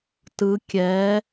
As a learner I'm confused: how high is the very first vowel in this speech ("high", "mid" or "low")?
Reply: high